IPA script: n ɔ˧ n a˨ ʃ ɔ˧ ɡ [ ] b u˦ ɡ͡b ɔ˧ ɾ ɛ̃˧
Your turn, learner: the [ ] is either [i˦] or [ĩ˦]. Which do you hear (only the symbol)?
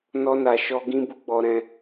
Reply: ĩ˦